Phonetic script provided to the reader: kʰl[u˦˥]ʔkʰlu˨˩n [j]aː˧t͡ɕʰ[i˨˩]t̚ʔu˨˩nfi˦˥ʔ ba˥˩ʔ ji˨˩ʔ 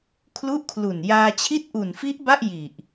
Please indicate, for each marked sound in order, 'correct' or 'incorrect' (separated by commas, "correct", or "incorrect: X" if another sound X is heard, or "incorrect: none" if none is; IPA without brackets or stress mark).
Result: incorrect: u˥˩, correct, incorrect: i˥˩